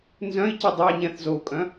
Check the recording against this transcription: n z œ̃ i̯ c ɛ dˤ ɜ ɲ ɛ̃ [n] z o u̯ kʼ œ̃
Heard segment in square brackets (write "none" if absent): θ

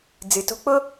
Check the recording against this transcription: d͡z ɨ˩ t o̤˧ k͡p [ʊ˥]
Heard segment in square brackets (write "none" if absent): ʊ˥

